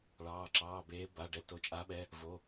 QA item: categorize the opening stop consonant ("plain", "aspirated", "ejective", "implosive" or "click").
click